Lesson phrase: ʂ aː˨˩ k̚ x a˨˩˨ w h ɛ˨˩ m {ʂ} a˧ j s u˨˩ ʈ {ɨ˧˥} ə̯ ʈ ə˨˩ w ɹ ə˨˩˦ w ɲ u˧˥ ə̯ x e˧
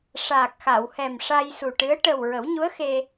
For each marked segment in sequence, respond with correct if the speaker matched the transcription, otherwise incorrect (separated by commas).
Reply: correct, correct